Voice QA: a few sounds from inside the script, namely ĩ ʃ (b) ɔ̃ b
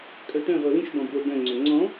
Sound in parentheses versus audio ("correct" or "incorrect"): correct